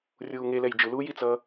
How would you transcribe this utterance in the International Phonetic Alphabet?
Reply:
rʲ uː ŋ e l ɛ j d͡ʒ ɯ l uː j i t͡s ʌː

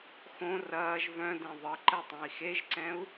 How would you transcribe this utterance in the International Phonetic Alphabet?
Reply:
x õ r ɐː ʒ v œ̃ d ẽ ðˤ ə ǃ ɛ tˤ ɛ̃ i̯ x e ʒ ǀ ɛ̃ u̯

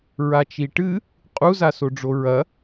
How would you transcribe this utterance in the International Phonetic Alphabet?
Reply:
ɹ a t͡ʃ i ʈ ɨ | qʼ u z a s o ɖ͡ʐ o ɹ ɐ

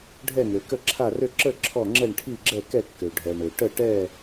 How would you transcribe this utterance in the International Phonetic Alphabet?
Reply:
ɖʱ ɛ˥˧ ŋ ø˨ k ə˥˧ ǁʰ a˥˧ r ø˥˧ ǁ ə˥˧ ǁʰ ɔ˥˧ ŋ͡ǁ ɛ˥˧ ɳ ʈʰ i˥˧ ɡ͡ǁ ɛ˥˧ k ɛ˥˧ kː ø˨ ɖʱ ɛ˨ ɳ ø˨ ʈ ə˥˧ ʈ ɛ˥˧

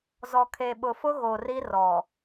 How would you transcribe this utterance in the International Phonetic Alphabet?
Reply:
z ɔ˨ kʰ e˨ ɓ ʊ˨ f ʊ˦ ɣ o˨ r i˦ r ɔ˨

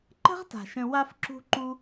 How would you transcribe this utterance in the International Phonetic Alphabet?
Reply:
ǃ ə̤˦ ʁ t a̤˩ ʃ ə̃˨ w a˦ f ǁ ṳ˦ ǃ u˦

